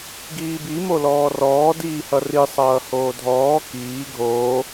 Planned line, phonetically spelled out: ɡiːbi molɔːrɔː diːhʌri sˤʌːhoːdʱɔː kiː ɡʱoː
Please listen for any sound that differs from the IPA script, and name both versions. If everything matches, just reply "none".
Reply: none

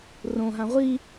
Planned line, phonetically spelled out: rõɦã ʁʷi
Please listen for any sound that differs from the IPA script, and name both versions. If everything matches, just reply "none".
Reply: none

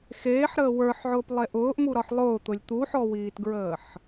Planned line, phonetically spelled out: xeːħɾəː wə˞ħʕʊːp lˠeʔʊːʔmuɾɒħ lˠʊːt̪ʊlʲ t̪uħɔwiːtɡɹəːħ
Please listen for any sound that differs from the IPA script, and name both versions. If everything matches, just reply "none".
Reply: none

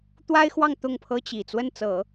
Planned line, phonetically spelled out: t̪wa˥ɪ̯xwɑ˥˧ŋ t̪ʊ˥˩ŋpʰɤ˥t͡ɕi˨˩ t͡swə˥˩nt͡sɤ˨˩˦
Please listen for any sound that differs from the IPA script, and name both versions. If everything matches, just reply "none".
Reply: none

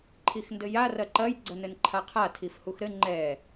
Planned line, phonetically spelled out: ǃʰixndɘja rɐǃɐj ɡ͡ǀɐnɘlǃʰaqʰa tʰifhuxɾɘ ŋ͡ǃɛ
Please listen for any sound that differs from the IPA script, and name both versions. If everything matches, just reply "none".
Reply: l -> n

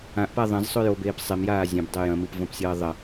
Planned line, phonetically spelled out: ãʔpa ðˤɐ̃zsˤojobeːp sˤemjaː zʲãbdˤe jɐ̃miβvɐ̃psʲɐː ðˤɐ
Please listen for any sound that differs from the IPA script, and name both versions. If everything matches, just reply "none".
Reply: β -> p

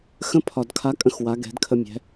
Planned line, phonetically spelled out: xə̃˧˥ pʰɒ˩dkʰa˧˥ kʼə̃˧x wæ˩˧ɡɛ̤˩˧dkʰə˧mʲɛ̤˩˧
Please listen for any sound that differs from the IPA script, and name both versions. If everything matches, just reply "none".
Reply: æ˩˧ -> a˩˧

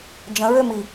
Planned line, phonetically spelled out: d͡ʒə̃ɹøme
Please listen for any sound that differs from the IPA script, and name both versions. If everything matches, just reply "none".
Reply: e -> i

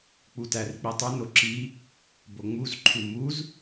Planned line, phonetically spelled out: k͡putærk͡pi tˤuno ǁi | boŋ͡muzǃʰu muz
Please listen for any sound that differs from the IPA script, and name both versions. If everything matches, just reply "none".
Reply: none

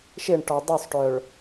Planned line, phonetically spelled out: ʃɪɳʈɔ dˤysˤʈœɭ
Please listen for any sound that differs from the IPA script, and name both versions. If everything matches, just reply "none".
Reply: none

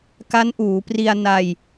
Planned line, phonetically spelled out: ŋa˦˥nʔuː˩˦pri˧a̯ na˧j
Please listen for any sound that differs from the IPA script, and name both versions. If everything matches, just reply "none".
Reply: ŋ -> k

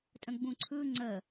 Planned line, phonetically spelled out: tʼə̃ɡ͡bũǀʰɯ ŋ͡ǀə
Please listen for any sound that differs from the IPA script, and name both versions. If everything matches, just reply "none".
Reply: none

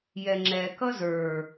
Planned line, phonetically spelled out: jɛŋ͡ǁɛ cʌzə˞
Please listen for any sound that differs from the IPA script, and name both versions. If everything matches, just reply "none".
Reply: c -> k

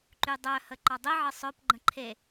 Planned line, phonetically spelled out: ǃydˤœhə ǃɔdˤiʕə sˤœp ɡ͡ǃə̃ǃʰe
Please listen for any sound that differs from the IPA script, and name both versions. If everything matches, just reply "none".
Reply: none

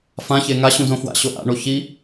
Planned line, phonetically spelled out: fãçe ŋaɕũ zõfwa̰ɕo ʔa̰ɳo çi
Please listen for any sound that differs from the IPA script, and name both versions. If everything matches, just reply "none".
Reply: none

